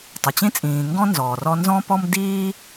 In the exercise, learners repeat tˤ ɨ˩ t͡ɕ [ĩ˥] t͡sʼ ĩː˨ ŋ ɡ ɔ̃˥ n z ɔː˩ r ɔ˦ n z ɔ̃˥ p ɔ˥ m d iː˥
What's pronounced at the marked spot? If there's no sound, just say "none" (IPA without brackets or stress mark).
ĩ˥